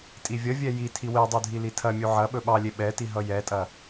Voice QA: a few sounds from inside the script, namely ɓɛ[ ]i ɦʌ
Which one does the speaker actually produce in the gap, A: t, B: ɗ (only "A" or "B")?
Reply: A